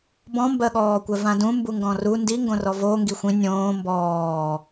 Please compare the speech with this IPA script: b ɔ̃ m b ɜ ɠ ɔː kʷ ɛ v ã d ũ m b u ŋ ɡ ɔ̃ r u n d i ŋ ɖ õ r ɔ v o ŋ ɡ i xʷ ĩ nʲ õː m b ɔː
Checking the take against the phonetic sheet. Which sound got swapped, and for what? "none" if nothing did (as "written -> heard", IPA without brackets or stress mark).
ɖ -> ɡ